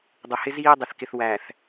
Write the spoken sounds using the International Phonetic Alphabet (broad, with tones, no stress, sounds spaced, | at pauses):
dˤ ʊ˨ h ɪ˦ z iː˦ dˤ ɪ˨ θ k ɪ˨ θ w æ˨ θ